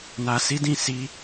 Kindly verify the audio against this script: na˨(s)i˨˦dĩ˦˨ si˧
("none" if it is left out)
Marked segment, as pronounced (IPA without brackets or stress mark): s